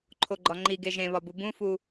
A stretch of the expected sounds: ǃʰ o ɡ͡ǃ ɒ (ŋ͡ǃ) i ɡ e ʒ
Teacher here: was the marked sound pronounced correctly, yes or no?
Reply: yes